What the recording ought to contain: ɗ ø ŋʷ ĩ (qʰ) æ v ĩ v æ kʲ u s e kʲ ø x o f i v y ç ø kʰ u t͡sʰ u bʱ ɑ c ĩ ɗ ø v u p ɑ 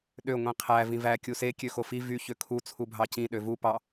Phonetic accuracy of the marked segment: correct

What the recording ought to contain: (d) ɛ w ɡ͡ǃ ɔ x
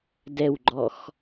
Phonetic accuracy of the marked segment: correct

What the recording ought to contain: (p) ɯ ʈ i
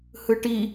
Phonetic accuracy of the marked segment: incorrect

